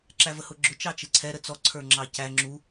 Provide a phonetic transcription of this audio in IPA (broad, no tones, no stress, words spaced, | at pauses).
ǁævəhʊɡ͡ǁʊ t͡ʃɑt͡ʃɪǀʰɛ ɾət͡sɔ ǀʰə˞ŋ͡ǁɑcæ ŋ͡ǁu